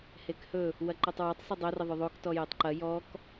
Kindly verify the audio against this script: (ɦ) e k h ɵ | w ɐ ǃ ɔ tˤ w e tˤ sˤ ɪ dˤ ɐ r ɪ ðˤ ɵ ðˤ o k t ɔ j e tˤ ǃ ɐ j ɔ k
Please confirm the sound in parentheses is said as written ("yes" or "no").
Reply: no